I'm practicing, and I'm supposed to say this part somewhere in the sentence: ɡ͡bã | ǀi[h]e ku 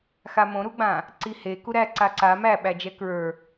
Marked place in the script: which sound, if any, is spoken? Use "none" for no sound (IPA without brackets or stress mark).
h